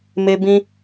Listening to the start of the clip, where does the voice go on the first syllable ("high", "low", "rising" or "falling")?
low